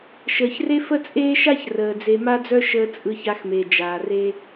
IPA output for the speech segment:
ʃ əː˨ ç r e˦ f ə˦ t͡sʼ eː˦ ʃ a˦ ç r əː˨ d͡z e˧ m a˦ d͡z œ˦ ʃ əː˧ t͡sʼ ɯ˧ ç a˧ x m e˨ d͡ʒ aː˨ r e˦

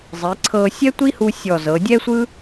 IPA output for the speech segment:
zˤ i˩˧ ǀʰ ɤ˧ sʲ ɛ˥ tʷ i˥ h u˧ sʲ ɔ˧˩ z ɤ˩˧ dʲ ɛ˥ sʷ ɯ˥

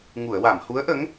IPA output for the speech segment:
ŋ u˨˩˨ ə̯ w a˨˩˨ m h u˧˥ ə̯ ʔ ə˧˥ ŋ

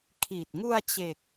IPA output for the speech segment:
kʰ iː˨˩ t̚ ŋ u˧ a̯ t͡ɕ e˨˩ k̚

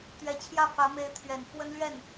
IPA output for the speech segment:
t̪ ɥ ɛ˨˩ t͡ɕʰ j ä˥˩ f ä˧˥ m e˧˥ ɪ̯ t̪ʰ ɥ ɛ˨˩ n f w ə˥ n l ɥ ɛ˥˩ n

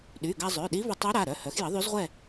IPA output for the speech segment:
ɗ y˩˧˩ ɡ a˧ zˤ ø˩˧˩ ɗ i˧˥ v ə˧ tˤ ø˧˥ ɾ a˩˧˩ ɾ œ˩˧˩ h œ˩˥ x j ə˩˥ ðˤ y˧˥ z ʁʷ ɛ˥˨

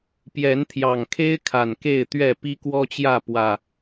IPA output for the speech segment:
p j ɛ˨˦ n t̪ʰ j ɑ˨˩ ŋ kʰ e˦ ɪ̯ kʰ a˨˩ n k e˥˨ ɪ̯ t̪ ɥ ɛ˥˨ p i˦ k w ɔ˦ t͡ɕ j ä˥˨ p w ä˨˩

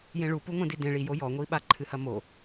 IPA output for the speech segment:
j ẽ ɭ u p u ŋʷ ɛ̃ d i d ẽ ɭ i j o j ɔ ŋʷ i ɓ a ǃʰ ɨ h ɐ m o

